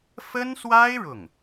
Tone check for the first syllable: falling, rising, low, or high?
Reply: high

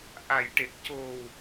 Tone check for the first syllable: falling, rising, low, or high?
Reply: low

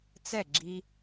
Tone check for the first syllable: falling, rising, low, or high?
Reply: falling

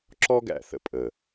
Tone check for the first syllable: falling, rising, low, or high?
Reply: high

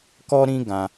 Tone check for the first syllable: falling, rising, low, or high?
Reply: high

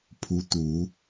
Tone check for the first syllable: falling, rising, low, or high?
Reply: rising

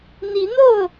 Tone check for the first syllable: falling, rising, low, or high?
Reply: rising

